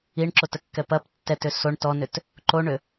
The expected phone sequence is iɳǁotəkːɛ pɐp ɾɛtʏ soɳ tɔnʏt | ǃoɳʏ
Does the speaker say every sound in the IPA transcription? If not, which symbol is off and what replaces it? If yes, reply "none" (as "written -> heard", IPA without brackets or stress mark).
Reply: ɾ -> tː